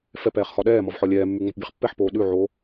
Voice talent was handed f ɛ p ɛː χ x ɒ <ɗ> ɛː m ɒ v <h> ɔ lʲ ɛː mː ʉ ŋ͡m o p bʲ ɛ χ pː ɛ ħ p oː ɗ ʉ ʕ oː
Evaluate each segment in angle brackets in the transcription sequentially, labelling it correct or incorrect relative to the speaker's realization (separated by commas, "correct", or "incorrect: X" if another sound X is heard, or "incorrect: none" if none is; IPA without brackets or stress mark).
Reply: correct, incorrect: ħ